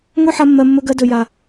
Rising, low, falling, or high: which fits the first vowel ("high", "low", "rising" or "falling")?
falling